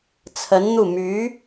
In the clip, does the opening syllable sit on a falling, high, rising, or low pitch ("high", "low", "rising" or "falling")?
rising